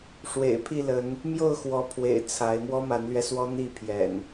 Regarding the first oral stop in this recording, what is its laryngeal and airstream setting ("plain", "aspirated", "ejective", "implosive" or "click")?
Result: aspirated